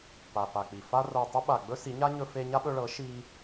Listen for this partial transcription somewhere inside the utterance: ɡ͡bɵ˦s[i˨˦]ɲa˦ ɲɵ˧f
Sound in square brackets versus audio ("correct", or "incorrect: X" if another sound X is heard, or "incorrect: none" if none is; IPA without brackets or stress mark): correct